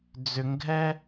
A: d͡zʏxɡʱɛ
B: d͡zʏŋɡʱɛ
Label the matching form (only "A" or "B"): B